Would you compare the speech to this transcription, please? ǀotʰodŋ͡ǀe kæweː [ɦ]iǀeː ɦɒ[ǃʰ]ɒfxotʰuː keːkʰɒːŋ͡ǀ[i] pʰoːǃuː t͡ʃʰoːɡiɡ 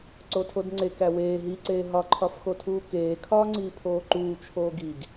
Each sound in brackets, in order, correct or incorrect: correct, correct, incorrect

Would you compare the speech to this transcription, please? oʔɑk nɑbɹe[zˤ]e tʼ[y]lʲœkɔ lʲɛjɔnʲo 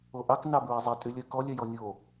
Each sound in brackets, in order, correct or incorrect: correct, correct

